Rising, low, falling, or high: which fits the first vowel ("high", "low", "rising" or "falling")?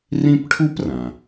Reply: high